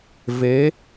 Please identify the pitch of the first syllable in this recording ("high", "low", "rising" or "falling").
rising